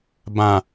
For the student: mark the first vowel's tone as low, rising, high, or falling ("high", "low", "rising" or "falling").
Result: low